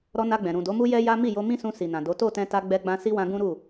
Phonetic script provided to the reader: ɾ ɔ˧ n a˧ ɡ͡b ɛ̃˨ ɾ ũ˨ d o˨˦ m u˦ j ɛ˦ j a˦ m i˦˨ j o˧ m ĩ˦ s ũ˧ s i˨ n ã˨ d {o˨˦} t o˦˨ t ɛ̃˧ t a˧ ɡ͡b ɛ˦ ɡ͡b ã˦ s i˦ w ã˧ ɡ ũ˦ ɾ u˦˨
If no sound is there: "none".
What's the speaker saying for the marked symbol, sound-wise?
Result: o˨˦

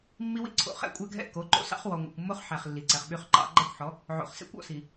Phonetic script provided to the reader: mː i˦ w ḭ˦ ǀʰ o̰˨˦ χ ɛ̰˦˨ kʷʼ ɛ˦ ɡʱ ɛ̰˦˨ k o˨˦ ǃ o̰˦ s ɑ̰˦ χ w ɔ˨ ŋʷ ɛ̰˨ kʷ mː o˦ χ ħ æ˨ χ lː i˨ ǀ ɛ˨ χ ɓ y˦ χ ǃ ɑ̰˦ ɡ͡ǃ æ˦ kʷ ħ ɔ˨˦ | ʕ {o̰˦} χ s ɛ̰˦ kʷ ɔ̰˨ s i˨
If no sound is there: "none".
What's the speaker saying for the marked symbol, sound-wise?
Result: o̰˨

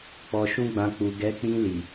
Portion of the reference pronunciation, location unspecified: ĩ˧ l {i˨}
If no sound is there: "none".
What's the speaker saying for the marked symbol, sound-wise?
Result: i˨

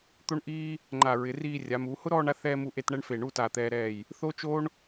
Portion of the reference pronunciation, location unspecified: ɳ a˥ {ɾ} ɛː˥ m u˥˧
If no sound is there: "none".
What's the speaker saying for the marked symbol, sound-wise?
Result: θ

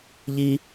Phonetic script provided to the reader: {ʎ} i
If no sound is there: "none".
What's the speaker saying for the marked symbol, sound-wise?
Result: ʎ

